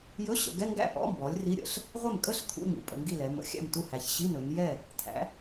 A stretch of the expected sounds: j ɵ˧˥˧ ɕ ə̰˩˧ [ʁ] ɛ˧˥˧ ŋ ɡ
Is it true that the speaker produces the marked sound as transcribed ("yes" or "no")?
no